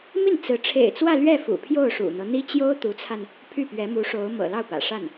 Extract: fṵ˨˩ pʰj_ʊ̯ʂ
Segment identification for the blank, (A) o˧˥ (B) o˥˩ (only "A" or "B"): B